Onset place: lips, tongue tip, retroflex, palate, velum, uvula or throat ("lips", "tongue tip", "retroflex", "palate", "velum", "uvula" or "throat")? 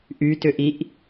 throat